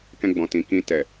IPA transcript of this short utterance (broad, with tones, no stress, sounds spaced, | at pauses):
k ɛ̃˧ ɡ͡b ɔ̃˨ t ĩ˨ k ĩ˧ t ɛ˨